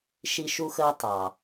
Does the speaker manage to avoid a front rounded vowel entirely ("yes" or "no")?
yes